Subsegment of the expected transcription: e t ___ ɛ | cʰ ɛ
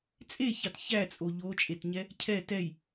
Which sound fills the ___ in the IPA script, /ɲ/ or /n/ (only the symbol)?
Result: ɲ